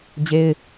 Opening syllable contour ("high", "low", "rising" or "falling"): high